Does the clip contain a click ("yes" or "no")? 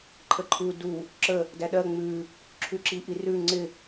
yes